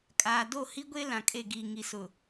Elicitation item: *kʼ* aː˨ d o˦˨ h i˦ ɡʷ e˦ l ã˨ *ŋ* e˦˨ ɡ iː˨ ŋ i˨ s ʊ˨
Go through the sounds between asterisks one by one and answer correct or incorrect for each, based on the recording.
correct, incorrect: kʼ

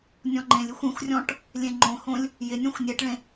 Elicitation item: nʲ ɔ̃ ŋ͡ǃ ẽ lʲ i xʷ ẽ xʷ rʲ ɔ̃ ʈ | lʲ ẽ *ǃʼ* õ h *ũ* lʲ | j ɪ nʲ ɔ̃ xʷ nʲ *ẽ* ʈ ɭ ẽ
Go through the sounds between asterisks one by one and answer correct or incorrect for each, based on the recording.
incorrect: ŋ͡ǃ, incorrect: õ, incorrect: e

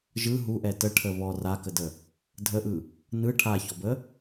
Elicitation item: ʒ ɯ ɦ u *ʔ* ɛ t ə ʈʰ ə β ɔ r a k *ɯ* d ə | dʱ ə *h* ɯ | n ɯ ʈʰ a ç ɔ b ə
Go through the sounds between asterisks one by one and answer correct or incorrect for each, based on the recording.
correct, incorrect: ə, incorrect: ʔ

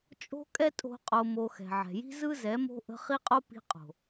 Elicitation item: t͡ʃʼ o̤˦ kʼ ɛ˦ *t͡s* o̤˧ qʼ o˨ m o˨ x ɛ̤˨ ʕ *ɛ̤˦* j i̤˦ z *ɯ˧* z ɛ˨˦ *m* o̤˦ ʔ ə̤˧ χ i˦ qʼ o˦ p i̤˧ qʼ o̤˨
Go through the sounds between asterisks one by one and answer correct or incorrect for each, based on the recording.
incorrect: tʼ, incorrect: ɛ̤˨, incorrect: ɯ˦, correct

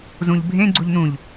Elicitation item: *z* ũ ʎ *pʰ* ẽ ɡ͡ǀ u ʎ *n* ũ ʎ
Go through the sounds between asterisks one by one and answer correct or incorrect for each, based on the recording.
correct, incorrect: bʱ, correct

